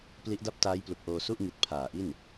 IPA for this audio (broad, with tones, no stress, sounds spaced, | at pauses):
p l i˦˥ ʔ d a˥˩ p̚ t aː˦˥ j p l u˨˩ k̚ ʔ oː˧ s u˥˩ ʔ ŋ i˨˩ t̚ pʰ aː˨˩ ʔ i˥˩ n